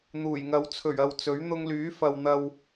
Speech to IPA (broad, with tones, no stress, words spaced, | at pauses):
n̪uː˨˩jŋɐ˨˧w t͡sʰɵ˨˩ɥɐ˨w t͡sɵ˨˥ɥ n̪ʊ˧ŋlyː˨˥ fɐ˨wn̪ɐ˨w